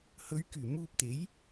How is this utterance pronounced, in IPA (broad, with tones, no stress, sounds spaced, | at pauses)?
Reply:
h ɵ˨˧ ɥ k yː˨˩ m uː˧ p̚ t̪ e˨˥ j